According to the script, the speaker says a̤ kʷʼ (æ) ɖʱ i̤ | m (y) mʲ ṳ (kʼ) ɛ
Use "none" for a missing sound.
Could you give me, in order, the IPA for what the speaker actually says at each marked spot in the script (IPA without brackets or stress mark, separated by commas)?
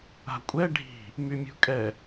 ɛ, y, kʼ